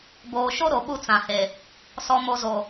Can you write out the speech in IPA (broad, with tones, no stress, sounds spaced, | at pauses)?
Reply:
b oː˨ ʃ o˦ ɾ o˨ ɓ u˦ t͡s ã˨ h e˨ | s ɔ˨ m o˨ z o˨